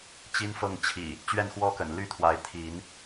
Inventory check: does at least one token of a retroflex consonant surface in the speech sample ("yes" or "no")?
no